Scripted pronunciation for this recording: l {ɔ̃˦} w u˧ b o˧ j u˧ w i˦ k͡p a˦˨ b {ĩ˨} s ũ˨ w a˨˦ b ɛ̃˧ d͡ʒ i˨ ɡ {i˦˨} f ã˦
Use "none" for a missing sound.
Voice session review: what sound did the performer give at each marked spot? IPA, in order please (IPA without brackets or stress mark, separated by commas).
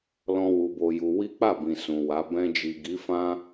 ɔ̃˦, ĩ˨, i˨˦